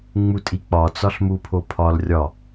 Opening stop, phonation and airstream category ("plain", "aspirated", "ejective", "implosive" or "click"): ejective